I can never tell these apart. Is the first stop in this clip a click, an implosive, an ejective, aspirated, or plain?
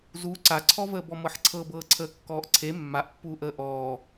click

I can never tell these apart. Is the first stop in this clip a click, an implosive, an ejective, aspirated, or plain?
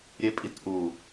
ejective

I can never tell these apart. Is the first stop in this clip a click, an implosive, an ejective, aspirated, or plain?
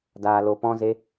plain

